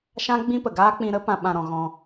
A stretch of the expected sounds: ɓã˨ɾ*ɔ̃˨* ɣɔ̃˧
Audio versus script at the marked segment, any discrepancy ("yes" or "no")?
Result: no